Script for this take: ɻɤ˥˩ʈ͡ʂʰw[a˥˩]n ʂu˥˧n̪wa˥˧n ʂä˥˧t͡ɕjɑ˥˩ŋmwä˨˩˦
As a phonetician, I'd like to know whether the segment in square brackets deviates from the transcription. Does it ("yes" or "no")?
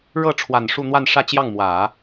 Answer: yes